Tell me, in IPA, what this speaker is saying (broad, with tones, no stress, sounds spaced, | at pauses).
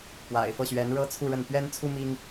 p w a̰˨˩ ɪ̯ f ɤ˥˩ ɕ ɥ ɛ˧˥ n ɻ ɤ˥ t͡sʰ u˥˧ ɻ ə˥˩ n p ɥ ɛ˥ n t͡sʰ u˥ m i˥ ŋ